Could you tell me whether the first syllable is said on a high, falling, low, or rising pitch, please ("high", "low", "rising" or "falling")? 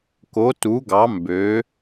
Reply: rising